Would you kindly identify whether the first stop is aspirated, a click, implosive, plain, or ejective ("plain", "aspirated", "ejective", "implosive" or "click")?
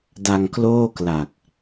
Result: plain